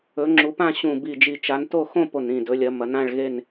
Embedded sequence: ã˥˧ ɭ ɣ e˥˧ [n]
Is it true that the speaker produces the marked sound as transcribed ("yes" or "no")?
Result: yes